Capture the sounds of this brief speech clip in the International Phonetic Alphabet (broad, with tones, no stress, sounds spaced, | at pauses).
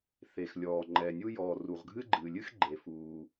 θ e˩ x lʲ ɔː˩ ŋ͡ǃ ɛ˩ nʲ u˥ j ɔː˩ r u˩ ʁ ɡʱ ɨ˥ ɡ͡ǃ ɨː˩ lʲ ɨ˥ x ɡ͡ǃ e˩ f uː˩